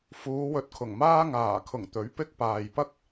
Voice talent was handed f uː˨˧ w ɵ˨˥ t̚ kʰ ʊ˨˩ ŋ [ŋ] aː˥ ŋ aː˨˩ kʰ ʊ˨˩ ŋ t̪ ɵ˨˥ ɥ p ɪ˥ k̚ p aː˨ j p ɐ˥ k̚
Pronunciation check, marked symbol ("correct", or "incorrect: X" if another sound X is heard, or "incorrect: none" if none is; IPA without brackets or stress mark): incorrect: m